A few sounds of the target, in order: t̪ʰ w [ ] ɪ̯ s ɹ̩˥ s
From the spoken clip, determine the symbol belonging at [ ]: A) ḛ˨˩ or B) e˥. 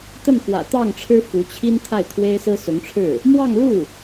B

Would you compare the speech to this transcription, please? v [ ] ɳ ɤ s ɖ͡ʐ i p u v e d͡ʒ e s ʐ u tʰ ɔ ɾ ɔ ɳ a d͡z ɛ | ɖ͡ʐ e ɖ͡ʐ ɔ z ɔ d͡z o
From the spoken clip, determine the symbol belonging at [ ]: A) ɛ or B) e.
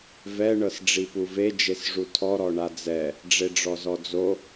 A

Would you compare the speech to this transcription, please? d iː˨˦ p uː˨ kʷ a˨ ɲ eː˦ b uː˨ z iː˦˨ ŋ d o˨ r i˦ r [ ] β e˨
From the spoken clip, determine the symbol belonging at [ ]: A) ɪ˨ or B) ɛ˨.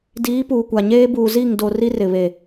A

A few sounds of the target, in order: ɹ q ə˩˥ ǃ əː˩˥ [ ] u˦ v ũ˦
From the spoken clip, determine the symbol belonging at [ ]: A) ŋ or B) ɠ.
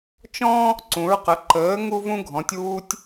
A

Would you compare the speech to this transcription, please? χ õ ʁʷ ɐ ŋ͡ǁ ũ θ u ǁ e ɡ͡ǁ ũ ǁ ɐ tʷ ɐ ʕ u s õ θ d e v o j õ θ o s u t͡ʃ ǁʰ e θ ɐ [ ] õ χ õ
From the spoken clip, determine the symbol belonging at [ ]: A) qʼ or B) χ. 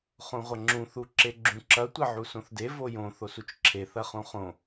B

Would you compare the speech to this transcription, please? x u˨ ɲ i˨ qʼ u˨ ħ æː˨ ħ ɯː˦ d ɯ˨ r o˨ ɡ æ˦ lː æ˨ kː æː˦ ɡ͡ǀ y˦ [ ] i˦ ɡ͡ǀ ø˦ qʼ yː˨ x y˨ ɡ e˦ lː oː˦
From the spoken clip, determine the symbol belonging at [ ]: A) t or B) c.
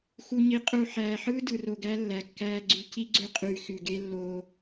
B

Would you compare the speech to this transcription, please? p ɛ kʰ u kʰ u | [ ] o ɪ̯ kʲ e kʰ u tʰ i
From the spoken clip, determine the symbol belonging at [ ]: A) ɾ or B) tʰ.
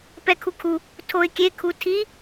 B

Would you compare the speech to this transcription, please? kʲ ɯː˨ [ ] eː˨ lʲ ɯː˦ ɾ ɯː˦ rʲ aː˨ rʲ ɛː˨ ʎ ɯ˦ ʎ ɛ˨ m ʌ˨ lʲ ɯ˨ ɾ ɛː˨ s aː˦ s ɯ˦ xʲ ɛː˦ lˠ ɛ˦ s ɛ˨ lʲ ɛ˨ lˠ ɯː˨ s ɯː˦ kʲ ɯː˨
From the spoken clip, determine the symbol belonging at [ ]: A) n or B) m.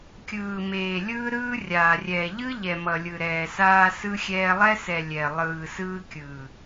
B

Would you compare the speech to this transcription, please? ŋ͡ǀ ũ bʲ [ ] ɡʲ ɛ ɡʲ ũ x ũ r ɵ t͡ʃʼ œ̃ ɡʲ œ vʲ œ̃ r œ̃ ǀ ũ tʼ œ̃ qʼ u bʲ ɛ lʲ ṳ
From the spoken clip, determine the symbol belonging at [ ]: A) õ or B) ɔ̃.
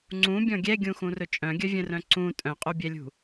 B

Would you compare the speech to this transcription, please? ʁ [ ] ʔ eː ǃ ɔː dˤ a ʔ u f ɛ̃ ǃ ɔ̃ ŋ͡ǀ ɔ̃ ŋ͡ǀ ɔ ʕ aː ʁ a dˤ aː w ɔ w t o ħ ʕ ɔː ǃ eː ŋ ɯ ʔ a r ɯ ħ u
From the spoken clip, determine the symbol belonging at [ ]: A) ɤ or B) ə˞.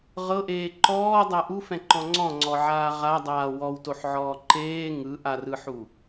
A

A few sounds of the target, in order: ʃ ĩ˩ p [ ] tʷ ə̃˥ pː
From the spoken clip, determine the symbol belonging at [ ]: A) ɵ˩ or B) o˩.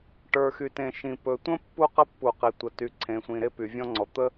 A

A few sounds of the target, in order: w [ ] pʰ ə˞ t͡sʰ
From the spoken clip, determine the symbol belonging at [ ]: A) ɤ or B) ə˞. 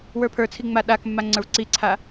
B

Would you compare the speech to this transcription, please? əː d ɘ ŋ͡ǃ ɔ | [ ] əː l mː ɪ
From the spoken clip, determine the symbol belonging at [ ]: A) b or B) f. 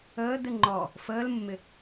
B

